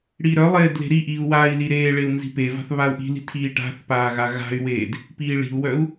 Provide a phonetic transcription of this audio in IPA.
ɽiːɾœlˠeːd le̤ɾiʔiːu̯ wai̯li ɾeːɭeu̯ nzi̤peva̤θ βau̯ʔi̤li̤ tʰiːʈa̤θpaː ɣaɣa̤y̯weːd | piːɭi̤u̯wœu̯

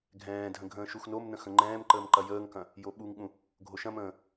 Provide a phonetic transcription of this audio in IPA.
ɡʱɛ̃ːdʱə̃ ɡʱə̃ːʃuxnomnə̃ xə̃ŋ͡ǃɛ̃ːmǃəːm ǃɐjəːŋkɐ̃ | joɓuŋɠũ | ɡʱoʃɐ̃mə̃ː

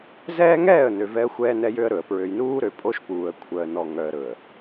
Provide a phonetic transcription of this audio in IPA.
zɛː˦ŋɛː˦˨ə̯nø˨ vɛ˦ə̯xʷɛː˦nɛ˦jø˦ə̯ ɾɵ˨ə̯ pɹø˨jnuː˦ɾø˨ pʼo˦ʃpuː˨ə̯ kʷʰœ˨ə̯nɔ˨ŋœ˨ə̯ ɾɵ˨ə̯

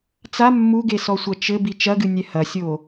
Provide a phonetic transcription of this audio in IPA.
t͡sa mːuɡesɔsʷɐ t͡ʃɘbi t͡ʃɐɡɨnʲɛ hɐsʲo

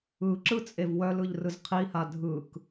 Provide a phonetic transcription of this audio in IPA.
ɯǁɯ t͡sʼevwœlɯʎ rɯzqʰiha dʱɯk

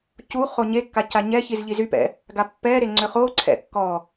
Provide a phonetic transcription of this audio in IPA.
cuχo ɲekːa caɲɛçiz ʎizypɛ̰ | ɡapːɛɾe ŋ͡ǀøχoǀʰɛ̰ kːɔ

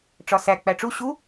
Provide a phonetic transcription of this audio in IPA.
ʈ͡ʂɒsæ k͡pæʈ͡ʂu ɕu

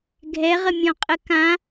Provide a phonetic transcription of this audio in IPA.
ɡʱɛʁəmʲɔ̃qʼə kã

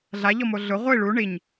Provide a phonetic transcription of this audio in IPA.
ɮaʎɔmo ɮʊ ʁʷi ɭu ɳiɲ

